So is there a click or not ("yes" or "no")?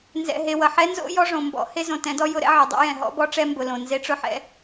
no